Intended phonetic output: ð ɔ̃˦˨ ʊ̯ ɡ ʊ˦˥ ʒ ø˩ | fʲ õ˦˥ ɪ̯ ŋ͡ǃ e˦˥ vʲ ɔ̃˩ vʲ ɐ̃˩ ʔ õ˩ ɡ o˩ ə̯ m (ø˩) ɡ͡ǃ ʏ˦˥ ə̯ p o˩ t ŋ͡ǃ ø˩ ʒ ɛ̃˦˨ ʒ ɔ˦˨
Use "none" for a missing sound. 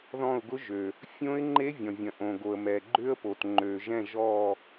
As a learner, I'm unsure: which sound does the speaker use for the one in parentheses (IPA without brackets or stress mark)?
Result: ɛ˩